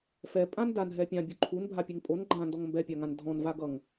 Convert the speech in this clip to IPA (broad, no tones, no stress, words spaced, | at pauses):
fɛ pʼãndan ɦɛpʲã bʲoǃʰun bʱapʲeŋpʼon ɡ͡ǃã ndɔŋmbɛpʲaŋãn dʱɔ̃nvaɡʌŋ